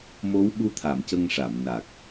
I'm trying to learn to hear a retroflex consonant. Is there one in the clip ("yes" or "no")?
yes